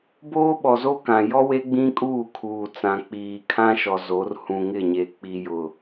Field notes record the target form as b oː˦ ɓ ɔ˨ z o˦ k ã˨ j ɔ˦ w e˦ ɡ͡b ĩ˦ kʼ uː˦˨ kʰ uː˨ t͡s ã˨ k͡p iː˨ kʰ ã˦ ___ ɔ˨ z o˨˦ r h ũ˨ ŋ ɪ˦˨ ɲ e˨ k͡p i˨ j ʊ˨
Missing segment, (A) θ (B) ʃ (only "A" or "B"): B